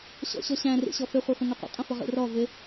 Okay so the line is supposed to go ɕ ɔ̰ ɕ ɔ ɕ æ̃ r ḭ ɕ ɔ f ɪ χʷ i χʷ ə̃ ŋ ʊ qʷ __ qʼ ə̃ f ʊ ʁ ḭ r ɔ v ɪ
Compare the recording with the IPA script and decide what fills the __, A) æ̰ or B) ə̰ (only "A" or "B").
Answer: B